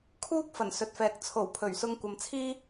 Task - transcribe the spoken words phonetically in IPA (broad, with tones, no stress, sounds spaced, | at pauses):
kʰ uː˥ k̚ f ɐ˨˩ n s ɵ˨ t̚ f ɛː˨˥ k̚ t͡sʰ o˨˩ w pʰ ɵ˨˩ ɥ s ʊ˧ ŋ kʷ ɐ˨ m t͡sʰ iː˥